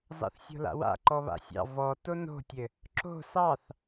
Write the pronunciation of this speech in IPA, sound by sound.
z ɑ̰ θ sʲ o̤ l a̰ w a̰ ǃ ɔ β a̰ sʲ ɑ̰ v ɔ t o n o̤ tʲ ɘ | ǁ o̤ s ɑ θ

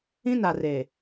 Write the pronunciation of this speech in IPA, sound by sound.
ĩ˦ n a˨ r e˨

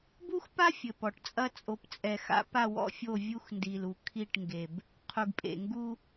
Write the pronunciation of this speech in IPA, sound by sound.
b u˦ x p a˦ fʲ ɘ˨ p ɔ˨ ʈ t͡sʼ ɐ˦ t͡sʼ o˨˦ p t͡sʼ ɛ˨ x a̰˦ p a˦˨ w ɔ̰˦ fʲ o˦˨ vʲ u˦ x n d i˨ l u˨ kʰ i˦˨ ʈ ŋ ɡ e˨ b | qʰ u˨ ɡ pʼ ḛ˨ ŋ ɡ u˦

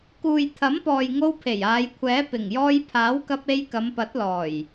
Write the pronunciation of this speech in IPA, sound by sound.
k uː˨ j t̪ʰ ɐ˨˥ m p ɔː˨ j ŋ o˧ w pʰ e˨˩ j aː˨˧ j kʷʰ ɛː˨˥ p ɪ˨˩ ŋ j ɔː˧ j pʰ aː˨˥ w k ɐ˧ p̚ e˧ j k ɐ˨˧ m p ɐ˨˥ t̚ l ɔː˨˩ j

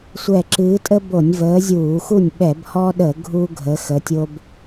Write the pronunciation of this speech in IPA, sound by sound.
sʷ ɛ˧˩ ǁ ɨː˨˦ tʼ ə˦ b o˧˩˧ nʲ v əː˨˦ zʲ uː˧˩˧ x u˥˩ nʲ ɓ ɛ˧˩˧ b h ɔ˦ ɗ ə˧˩˧ ɡʱ u˦ ɡʱ ə˨˦ x ə˨˦ tʲ o˦ b

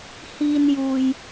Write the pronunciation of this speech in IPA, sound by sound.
h iː˧ n j uː˨ j

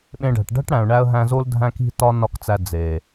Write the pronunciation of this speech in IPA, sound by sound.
ɓ ẽ˧ ɖ æ̤˨ ʈ ɖ æ̤˦ ʈ ɽ æ̃˨ ʊ̯ ɳ æ˧ ə̯ ɦ æ̃˧ z o˦ l dʱ æ̃˦ k i̤˦ t ɒ˦ n ɒ˦˨ k t͡s æ˧ d͡z e˨

